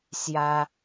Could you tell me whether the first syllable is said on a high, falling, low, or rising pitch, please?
high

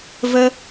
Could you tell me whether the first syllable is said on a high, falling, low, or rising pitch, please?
high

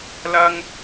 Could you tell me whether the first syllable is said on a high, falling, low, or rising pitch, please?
high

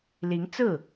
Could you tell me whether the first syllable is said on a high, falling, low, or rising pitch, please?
rising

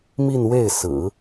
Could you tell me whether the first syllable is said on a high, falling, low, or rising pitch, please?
falling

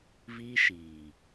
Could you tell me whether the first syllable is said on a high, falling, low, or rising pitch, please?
high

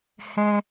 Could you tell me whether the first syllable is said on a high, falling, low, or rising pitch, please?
high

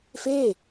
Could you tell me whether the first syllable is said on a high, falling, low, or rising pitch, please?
falling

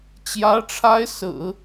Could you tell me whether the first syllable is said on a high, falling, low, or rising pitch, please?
rising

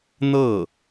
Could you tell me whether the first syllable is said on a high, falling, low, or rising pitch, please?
falling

